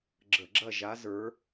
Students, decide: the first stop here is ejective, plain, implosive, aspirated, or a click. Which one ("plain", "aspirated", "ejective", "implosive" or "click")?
click